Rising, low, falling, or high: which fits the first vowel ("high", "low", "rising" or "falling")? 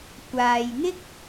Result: low